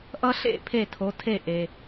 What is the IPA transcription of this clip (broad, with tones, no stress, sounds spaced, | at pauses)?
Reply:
ʔ ʌ˥ ɬ ḛ˥˩ pʰ e˥˩ tʰ o˨˥ tʰ e˥˩ ʔ e˨